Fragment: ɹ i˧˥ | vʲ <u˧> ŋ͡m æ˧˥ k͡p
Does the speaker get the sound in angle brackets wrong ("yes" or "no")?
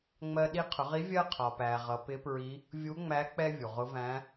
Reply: yes